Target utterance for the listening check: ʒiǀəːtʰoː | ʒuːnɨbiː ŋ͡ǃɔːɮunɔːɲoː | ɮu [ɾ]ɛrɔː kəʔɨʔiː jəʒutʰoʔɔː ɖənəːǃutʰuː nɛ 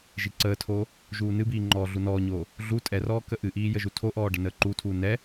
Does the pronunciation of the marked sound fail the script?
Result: yes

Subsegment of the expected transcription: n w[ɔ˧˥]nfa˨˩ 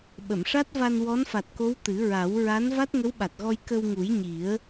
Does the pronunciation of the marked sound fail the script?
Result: no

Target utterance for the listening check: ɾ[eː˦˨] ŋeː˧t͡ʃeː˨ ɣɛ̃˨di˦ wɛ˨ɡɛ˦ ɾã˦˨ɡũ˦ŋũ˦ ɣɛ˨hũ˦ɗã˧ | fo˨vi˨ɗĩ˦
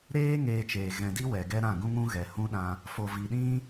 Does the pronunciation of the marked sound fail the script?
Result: yes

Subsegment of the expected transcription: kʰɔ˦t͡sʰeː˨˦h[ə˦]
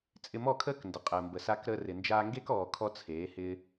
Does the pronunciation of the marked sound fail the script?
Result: yes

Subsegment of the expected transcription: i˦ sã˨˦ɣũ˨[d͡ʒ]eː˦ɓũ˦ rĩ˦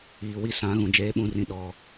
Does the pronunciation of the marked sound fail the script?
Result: no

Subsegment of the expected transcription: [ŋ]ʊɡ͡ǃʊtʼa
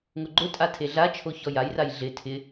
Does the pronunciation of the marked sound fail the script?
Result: no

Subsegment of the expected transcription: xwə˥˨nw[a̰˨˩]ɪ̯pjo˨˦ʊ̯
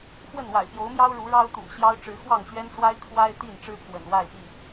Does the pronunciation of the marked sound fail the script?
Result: no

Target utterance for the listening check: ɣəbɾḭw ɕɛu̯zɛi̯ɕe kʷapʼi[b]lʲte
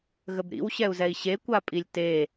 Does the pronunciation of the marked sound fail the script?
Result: yes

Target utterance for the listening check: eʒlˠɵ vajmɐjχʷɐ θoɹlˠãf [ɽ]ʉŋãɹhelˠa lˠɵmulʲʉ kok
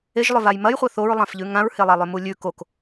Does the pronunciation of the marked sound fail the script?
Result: yes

